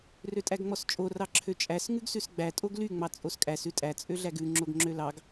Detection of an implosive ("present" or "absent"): absent